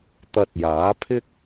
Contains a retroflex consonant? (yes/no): no